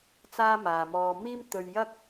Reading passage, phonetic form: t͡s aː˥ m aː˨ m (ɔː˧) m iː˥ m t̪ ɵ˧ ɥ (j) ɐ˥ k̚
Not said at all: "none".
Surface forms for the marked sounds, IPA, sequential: ɔː˧, j

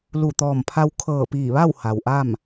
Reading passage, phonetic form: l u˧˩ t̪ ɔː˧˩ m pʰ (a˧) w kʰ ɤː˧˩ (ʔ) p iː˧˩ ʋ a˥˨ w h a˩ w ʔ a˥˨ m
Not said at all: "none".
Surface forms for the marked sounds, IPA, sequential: a˧, none

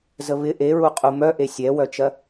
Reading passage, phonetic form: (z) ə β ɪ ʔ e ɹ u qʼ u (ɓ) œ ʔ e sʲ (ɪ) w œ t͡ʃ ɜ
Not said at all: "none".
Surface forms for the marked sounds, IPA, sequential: z, m, ɛ

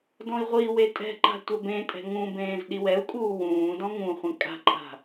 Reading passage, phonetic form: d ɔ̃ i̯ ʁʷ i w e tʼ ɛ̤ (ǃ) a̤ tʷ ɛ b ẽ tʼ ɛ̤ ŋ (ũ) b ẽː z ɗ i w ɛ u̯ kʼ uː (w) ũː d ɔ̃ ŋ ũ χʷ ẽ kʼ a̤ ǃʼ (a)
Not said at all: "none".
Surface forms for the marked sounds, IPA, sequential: ǃ, ũ, w, a̤

